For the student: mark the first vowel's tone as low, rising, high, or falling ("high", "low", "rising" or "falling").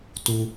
high